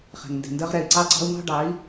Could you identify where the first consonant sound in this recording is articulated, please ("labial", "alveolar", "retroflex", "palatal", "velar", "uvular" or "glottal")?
uvular